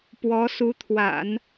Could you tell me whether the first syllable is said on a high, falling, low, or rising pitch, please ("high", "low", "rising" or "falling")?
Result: rising